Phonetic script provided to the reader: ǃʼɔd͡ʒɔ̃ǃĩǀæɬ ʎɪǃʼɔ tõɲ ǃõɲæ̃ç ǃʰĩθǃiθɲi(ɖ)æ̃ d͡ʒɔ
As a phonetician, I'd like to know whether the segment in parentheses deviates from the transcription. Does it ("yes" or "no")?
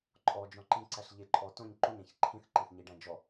no